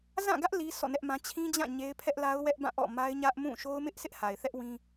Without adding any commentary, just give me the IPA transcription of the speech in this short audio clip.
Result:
z ã˦˨ ɡ ä˦ ʔ l i˦ sʰ ɔ̰˦˨ n ɛ˦ ʔ m ã˦ t͡ɕʰ ĩ˦ d͡ʑ ã˦˨ ɲ e˦ ɪ̯ pʰ ɛ˦ ʔ l a˦ ʊ̯ w ɛ˦ ʔ b ã˦˨ ʔ ɔ̰˦˨ m a˦ ɪ̯ ɲ ä˦ ʔ m ũ˦˨ ʃ o˦ ʊ̯ m ɪ˦ ʔ s ɪ˦ ʔ h a˨ ɪ̯ θ ɛ˦ ʔ w ĩ˦

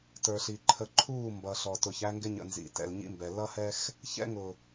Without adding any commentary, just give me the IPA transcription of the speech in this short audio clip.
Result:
t ə˞˨ ɬ i˨ ǃʰ ə˨ ǃʰ uː˦˨ m b ʌ˨ ɬ ɔ˨ t ʊ˨ ç æ˦ ŋ ɡ ɪ˦ ɲ ə̰˨ n z ḭ˨ t ɛ̰˨ l ɲ ḭ˦ m b ɛ˨ l ʌ˦ h ɛ˦ x | ç ɛ̰˦ ŋ ʊ˨

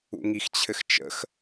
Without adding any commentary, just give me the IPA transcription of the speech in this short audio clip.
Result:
ṵ ŋ i x t͡ɕʰ ɘ x t͡ʃ ə̰ x

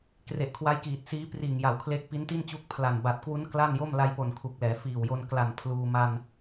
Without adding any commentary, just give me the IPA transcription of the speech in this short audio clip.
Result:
k r e˨˩ ʔ kʰ w a˦˥ j k iː˨˩ t̚ s iː˦˥ p r iː˨˩ ŋ j a˩˦ w kʰ l e˦˥ k̚ p i˦˥ n t i˥˩ n t͡ɕ u˦˥ k̚ pʰ l a˨˩ n b a˨˩ t̚ k w u˦˥ n k l a˥˩ n j o˥˩ m l a˧ j p o˨˩ n kʰ u˨˩ k̚ l ɛː˩˦ f iː˨˩ w j o˧ n k l a˨˩ n pʰ l uː˧ m a˧ n

